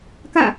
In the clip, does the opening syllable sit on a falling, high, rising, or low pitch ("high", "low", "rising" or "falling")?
falling